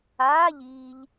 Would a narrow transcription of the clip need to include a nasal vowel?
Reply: no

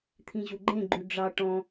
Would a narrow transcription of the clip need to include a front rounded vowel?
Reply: yes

